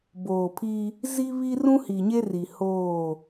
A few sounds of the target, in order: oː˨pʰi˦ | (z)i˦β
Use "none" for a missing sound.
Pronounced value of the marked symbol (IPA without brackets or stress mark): z